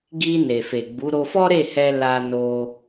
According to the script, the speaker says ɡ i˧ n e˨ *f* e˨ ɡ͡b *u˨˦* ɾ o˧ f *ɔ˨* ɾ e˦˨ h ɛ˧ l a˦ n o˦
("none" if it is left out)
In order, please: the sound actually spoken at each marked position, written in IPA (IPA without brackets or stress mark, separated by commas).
f, u˨˦, ɔ˦